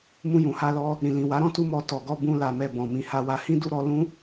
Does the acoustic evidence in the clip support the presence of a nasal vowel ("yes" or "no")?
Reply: yes